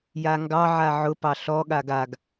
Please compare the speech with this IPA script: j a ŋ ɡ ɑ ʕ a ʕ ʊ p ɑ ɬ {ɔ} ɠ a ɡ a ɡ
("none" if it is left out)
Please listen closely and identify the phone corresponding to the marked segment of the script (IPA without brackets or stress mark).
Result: ɔ